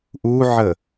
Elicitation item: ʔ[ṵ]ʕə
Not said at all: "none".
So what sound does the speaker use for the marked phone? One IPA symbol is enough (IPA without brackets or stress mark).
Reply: u